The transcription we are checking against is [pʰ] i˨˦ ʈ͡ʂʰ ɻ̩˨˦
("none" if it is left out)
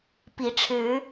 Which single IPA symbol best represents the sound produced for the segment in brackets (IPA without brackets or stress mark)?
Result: p